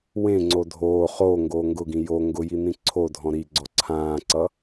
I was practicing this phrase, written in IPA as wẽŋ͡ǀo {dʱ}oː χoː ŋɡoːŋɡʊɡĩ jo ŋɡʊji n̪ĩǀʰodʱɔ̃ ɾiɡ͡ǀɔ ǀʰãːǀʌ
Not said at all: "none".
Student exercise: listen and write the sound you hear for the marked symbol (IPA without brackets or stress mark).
dʱ